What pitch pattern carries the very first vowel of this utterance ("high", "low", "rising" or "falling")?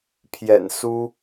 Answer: low